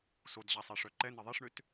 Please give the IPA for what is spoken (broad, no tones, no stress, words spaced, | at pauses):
sodʑasˤɛʂœ ǃɛne ðˤeʂɳøt